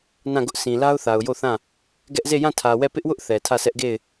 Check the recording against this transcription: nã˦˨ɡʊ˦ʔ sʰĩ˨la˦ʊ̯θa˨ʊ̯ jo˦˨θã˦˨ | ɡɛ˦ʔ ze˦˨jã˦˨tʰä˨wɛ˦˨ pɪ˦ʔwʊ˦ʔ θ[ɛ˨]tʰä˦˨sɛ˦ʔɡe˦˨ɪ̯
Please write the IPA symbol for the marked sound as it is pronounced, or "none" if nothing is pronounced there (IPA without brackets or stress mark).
ɛ˨